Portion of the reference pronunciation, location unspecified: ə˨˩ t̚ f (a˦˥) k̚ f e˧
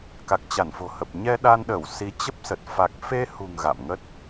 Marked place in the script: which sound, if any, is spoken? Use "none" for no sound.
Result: a˨˩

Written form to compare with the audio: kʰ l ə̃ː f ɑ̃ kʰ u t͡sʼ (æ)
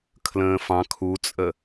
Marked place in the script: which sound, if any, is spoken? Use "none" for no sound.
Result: ə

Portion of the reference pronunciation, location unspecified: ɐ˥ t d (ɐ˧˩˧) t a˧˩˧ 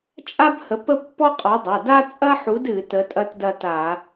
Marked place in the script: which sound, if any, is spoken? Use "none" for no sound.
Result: ɐ˥˧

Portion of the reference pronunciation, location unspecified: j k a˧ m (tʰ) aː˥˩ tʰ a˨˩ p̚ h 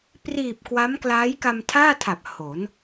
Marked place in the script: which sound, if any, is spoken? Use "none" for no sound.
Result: tʰ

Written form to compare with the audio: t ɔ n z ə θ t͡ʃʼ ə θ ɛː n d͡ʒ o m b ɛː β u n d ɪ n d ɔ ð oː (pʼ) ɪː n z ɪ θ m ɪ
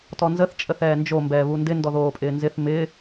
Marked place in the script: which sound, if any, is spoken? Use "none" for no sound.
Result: pʼ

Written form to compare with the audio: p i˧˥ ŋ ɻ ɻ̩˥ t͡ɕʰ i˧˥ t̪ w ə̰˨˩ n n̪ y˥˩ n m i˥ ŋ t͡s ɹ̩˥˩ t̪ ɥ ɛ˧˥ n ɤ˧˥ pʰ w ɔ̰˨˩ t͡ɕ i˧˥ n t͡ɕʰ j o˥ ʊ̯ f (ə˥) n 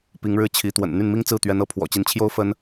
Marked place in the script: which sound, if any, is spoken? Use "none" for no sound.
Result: ə˥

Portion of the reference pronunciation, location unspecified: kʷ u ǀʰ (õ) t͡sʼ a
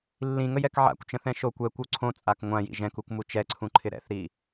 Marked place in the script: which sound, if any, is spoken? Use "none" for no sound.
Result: õ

